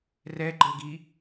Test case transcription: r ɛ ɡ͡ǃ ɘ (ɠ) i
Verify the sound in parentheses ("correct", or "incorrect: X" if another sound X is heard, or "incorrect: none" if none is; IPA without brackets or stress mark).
incorrect: ɡ